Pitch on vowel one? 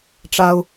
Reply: low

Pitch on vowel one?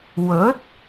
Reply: rising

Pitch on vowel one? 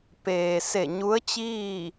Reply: low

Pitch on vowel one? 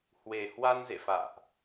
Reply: low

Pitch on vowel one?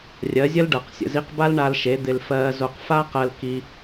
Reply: rising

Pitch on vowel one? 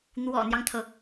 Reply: low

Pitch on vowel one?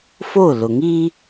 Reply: falling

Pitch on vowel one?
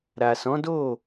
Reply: low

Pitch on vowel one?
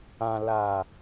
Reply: low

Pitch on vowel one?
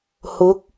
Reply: rising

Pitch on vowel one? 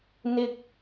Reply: high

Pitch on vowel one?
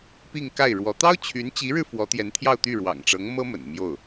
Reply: falling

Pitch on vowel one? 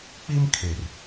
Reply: high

